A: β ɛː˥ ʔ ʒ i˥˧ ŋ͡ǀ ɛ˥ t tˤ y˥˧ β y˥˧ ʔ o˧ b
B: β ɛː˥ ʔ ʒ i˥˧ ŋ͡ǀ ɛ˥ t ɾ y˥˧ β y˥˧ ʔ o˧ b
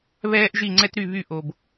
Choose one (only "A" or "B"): B